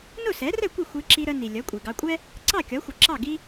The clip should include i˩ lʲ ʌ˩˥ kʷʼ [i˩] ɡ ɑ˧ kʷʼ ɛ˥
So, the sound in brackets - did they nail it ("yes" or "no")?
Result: yes